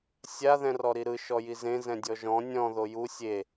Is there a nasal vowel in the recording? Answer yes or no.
yes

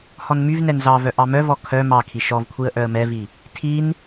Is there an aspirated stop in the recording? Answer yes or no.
yes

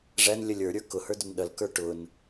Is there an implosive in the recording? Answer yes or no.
yes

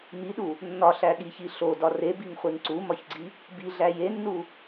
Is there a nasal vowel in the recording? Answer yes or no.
no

